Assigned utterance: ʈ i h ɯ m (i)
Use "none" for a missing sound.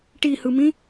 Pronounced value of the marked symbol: ĩ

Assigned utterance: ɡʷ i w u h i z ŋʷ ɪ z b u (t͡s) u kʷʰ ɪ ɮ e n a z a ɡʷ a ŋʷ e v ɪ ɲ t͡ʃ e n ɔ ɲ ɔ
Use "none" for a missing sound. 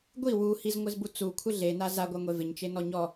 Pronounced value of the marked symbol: t͡s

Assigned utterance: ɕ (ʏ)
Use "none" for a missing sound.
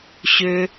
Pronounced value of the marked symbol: ʏ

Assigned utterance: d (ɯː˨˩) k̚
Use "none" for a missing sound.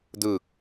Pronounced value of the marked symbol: ɯː˨˩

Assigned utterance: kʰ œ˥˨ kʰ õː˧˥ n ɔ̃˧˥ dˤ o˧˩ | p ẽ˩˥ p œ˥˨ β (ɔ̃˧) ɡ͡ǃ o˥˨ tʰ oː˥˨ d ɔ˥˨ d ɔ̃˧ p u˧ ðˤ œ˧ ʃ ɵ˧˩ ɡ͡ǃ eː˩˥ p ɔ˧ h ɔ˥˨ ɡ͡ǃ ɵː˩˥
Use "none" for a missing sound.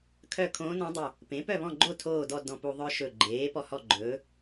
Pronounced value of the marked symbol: ɔ̃˥˨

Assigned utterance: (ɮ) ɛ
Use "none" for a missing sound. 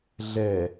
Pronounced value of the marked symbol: ɮ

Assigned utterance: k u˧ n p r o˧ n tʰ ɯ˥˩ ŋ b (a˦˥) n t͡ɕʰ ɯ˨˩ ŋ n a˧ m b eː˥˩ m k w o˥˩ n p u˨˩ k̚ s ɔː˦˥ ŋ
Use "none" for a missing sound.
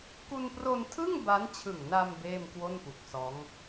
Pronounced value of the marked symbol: a˦˥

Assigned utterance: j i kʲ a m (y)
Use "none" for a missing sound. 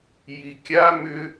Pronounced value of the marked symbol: ʏ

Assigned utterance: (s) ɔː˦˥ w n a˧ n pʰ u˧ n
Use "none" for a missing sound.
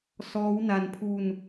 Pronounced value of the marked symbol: s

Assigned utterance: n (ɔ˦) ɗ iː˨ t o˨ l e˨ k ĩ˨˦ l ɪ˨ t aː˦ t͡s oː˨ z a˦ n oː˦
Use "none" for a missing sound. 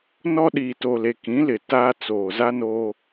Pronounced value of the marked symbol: ɔ˦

